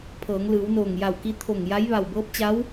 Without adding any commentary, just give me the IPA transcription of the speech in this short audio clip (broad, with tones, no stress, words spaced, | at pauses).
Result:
pʰɤː˩˧ŋlɯː˩˧wnoː˧˩ŋ ja˧˩wki˧˥ t̪ʰo˧˩ŋja˧˥j ʋa˧˩wbɤː˧˥p̚t͡ɕa˧˥w